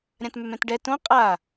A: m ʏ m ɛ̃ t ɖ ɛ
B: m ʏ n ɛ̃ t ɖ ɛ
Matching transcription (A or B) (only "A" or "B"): A